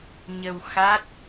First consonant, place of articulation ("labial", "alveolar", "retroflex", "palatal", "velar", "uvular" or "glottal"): palatal